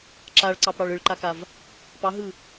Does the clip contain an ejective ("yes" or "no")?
no